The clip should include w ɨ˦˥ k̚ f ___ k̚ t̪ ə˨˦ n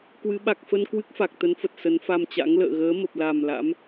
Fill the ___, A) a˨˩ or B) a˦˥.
A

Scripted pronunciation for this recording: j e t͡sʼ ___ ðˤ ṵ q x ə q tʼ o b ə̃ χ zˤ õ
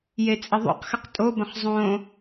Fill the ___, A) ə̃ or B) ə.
B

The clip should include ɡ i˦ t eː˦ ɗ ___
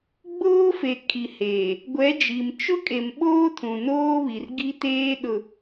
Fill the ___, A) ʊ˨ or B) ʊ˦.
A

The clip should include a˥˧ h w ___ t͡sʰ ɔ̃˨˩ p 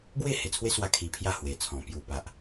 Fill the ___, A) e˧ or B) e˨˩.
B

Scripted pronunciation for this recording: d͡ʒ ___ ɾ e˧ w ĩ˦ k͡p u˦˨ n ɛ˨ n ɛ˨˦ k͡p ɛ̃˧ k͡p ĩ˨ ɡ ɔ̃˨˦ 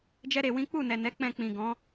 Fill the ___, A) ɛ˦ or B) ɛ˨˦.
A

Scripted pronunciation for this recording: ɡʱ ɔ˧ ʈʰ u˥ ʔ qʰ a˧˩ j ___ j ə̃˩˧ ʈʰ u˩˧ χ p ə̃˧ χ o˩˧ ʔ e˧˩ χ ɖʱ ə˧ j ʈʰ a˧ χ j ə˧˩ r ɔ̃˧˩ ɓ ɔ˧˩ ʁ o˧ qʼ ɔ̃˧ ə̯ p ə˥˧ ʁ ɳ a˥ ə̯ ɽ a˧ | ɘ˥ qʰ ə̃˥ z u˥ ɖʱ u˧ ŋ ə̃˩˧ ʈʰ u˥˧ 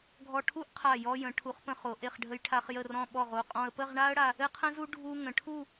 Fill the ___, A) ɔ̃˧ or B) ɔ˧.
B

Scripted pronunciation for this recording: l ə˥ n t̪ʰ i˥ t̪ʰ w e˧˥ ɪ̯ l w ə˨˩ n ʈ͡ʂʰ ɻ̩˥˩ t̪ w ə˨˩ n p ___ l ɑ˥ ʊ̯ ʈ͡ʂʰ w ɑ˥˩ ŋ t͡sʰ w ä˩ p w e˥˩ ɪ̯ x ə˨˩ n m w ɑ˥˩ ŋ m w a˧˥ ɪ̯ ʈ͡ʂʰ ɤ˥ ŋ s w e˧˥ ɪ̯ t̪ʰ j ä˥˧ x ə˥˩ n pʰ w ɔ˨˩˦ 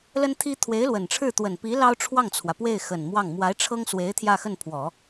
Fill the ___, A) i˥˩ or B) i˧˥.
B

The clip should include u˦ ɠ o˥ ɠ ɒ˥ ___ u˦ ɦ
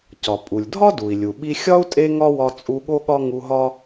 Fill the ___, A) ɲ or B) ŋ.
B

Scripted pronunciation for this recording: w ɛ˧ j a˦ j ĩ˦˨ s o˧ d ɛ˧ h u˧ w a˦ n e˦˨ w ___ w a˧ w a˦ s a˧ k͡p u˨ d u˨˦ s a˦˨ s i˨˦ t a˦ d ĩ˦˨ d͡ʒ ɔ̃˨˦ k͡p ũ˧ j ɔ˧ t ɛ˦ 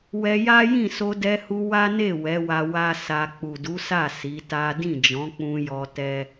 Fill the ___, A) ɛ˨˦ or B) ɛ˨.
A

